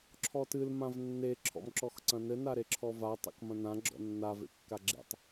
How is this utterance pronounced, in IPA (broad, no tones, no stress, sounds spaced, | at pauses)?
ǁʰ ɔ t ɨ l m ã v nː e ǁʰ ɔ̰ m ǁ ɔ x ǀ ɐ̃ n ɘ n a ɾ e ǁʰ ɔ v a tˤ ḛ k m ɐ̃ n ã ɡ͡ǁ ɔ̰ nː a v ḛ kː a ɡ͡ǁ ḛ tˤ